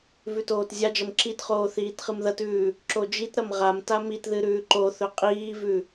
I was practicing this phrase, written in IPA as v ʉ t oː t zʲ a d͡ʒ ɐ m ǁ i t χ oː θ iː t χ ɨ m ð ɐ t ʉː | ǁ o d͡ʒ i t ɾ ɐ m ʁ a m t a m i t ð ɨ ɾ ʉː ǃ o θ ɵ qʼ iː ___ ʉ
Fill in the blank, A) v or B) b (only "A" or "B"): A